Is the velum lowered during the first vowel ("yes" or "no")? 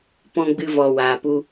yes